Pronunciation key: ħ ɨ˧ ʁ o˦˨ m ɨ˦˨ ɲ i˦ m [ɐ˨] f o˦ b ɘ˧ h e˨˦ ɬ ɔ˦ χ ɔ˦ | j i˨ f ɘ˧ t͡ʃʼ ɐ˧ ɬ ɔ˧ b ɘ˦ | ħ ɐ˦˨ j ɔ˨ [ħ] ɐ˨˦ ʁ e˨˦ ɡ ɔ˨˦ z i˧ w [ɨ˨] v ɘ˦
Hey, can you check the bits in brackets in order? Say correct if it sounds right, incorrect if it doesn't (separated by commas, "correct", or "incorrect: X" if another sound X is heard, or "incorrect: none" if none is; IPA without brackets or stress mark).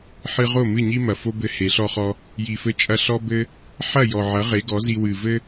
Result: correct, incorrect: ʕ, correct